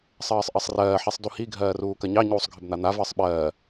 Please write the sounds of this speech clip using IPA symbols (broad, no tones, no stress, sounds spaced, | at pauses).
sˤ ɜː sˤ ʔ ɜ sˤ r ɜː ħ i sˤ d u h i ɡʱ ɜː r uː k ɐ ɲ ɑ ɲ uː sˤ ɡʱ ə b n̪ a n̪ a v əː sˤ ɓ ɜː